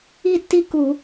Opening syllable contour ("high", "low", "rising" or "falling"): falling